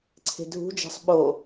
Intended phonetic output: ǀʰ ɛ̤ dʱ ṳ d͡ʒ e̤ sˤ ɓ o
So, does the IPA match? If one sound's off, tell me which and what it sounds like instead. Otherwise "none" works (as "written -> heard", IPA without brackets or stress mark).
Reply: ɛ̤ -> e̤